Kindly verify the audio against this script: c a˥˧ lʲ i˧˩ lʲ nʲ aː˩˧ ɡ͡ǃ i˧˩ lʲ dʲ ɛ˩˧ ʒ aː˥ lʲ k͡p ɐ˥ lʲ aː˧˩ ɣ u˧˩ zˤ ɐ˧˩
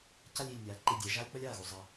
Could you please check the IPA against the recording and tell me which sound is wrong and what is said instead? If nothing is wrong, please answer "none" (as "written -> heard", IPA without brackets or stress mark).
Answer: ɡ͡ǃ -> ǃ